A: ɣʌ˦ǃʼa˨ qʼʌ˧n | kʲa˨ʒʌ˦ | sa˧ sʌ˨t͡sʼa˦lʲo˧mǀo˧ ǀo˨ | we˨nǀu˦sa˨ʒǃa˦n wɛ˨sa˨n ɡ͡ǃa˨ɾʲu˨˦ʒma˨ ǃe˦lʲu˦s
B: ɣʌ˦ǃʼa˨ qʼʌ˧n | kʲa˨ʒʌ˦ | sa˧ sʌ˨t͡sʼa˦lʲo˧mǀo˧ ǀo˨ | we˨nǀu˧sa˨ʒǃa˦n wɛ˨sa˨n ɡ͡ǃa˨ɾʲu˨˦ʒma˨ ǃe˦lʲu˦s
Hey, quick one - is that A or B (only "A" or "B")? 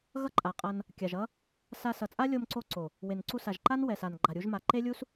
B